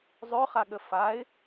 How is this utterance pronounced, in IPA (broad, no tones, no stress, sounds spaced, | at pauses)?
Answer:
zˤ ø χ a ɠ ə f a ɪ̯